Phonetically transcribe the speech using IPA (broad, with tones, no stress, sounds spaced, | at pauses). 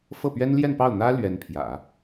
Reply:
f ɤ˥˩ p ɥ ɛ˥ n l j ɛ˥˧ n p ɑ˥˩ ʊ̯ n̪ ä˥ l ɥ ɛ˧˥ n pʰ j ä̰˨˩˦